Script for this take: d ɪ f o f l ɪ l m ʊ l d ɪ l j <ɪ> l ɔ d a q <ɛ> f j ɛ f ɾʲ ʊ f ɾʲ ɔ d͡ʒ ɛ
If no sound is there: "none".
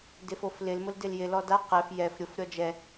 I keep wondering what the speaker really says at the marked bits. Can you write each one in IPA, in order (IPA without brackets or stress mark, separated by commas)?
ɪ, ɛ